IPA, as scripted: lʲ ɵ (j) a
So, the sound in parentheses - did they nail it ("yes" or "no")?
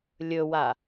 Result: no